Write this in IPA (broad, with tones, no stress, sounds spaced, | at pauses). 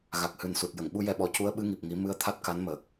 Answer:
ɣ a˨˩ k̚ h ɨ˨˩ n s u˨˩ t̚ j ə˨˩˨ ŋ ɓ u˧ j ɛ˧ ɓ ɔ˨˩˦ c u˧˥ ə̯ ɓ ɨ˧˥ ŋ i˨˩ p̚ ŋ i˨˩˦ m ɨ˧ ə̯ t̪ʰ a˦˥ t̚ k a˧˥ n m əː˨˩ k̚